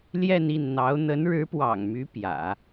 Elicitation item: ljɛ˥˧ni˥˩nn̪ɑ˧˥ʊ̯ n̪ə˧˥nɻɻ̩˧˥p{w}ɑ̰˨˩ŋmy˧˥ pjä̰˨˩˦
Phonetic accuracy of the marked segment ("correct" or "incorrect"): correct